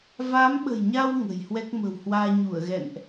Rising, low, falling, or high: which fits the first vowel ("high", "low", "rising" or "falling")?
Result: rising